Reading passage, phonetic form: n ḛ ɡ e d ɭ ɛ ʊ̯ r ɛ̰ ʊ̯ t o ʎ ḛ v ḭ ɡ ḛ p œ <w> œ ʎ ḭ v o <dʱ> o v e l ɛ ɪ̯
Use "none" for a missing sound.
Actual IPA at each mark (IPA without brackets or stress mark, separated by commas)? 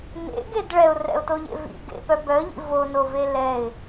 b, n